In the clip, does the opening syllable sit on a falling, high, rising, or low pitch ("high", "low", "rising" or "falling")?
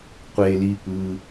high